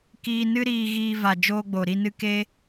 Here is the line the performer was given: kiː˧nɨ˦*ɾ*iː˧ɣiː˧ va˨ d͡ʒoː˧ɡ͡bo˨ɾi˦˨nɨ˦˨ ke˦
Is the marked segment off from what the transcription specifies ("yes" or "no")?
no